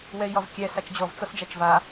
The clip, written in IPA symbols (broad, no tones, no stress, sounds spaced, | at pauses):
w ɛ i̯ j ɒ v kʲ ɛ s a t͡ʃ d͡ʑ ɔ v t͡s ɔ s d͡ʒ a t͡ʃ v a